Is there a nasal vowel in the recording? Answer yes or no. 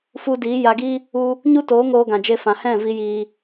yes